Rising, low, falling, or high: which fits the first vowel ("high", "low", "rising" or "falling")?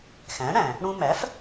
rising